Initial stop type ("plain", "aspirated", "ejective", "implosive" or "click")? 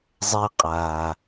ejective